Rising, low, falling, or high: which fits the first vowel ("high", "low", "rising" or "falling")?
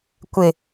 low